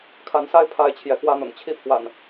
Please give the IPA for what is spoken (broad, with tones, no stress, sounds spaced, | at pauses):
kʰ a˨˦ n s a˦ ɪ̯ pʰ a˦ ɪ̯ t͡ɕʰ j ɛ˨˦ k w ä˦ n̪ ʊ̰˨˩ ŋ t͡ɕʰ i˦ pʰ w a̰˨˩ n